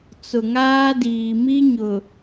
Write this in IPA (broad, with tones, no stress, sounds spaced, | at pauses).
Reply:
t͡s ʊ˨ ŋ aː˦ d iː˨ m i˦ ɲ ʊ˨